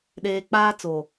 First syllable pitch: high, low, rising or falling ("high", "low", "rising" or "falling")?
low